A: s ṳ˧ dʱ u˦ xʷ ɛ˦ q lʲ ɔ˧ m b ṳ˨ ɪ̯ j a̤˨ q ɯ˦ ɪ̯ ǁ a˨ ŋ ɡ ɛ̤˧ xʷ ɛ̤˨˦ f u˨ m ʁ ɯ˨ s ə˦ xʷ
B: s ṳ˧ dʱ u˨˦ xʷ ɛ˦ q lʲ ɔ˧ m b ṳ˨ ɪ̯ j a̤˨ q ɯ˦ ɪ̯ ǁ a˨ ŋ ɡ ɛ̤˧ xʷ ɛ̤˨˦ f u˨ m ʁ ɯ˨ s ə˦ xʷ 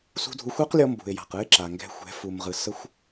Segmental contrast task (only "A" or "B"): B